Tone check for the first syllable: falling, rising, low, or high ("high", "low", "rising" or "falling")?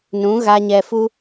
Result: rising